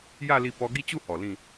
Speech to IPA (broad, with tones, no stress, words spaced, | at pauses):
ja˥˧li˧ pɔ˧ɡi˥˧t͡ɕu˥˧ hɔ˨˩lĩ˥˧